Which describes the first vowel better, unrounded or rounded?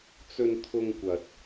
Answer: rounded